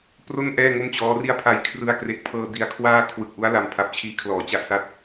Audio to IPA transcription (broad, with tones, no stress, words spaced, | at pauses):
pro˥˩n ʔɛː˥˩ŋo˥˩mt͡ɕɔː˦˥ri˥˩a̯ pʰa˨˩jkʰrɯ˧a̯kre˨˩k̚pʰɤː˧ di˧a̯kʰwaː˥˩ kʰwɯ˨˩k̚ʔu˦˥a̯ la˧mpʰa˨˩p̚t͡ɕʰiː˧kʰlɔː˩˦ t͡ɕa˥˩ʔsa˥˩t̚